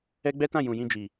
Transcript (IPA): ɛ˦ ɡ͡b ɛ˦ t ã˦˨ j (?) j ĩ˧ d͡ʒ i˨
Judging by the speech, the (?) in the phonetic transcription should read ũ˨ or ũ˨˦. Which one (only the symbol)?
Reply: ũ˨